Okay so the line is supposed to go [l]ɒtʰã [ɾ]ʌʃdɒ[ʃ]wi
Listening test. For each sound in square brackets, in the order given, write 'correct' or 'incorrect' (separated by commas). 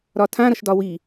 incorrect, correct, incorrect